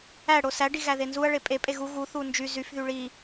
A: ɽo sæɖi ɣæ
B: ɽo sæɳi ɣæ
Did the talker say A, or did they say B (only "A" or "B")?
A